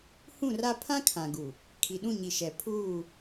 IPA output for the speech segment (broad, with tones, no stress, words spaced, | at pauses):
hũ˦˨ra˦ pʰã˦ kʰã˨ɡu˨ | kʰi˨ɗũ˦˨ɲi˨ʃɛ˨ pʰuː˦˨